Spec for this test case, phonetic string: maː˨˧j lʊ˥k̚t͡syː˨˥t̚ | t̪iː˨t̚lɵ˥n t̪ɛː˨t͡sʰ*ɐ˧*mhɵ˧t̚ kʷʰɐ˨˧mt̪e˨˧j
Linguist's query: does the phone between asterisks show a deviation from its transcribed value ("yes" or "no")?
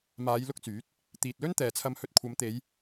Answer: no